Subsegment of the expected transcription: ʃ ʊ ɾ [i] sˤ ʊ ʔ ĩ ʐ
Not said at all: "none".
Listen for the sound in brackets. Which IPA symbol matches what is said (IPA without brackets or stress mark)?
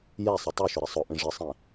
ɪ